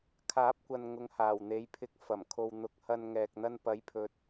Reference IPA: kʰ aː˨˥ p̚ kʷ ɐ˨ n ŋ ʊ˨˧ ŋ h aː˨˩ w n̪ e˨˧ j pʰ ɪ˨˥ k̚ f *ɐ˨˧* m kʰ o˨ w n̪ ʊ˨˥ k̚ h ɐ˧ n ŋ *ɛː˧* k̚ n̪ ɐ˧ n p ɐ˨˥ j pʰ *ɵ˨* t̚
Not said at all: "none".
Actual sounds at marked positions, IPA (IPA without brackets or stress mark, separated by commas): ɐ˨˩, ɛː˨, ɵ˨